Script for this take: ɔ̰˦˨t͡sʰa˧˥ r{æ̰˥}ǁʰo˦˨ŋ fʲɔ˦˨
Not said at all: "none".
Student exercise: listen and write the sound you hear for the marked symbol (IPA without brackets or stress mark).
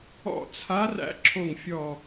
æ̰˥